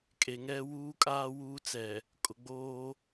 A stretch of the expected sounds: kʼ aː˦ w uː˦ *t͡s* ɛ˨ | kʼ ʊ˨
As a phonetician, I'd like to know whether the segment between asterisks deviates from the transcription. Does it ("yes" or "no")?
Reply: no